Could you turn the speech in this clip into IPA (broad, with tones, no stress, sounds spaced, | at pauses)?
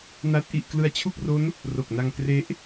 n a˦˥ t̚ ʔ i˨˩ ʔ k l ɯ˧ a̯ t͡ɕʰ u˥˩ k̚ r o˦˥ n | r o˨˩ k̚ n a˧ ŋ k r e˦˥ ʔ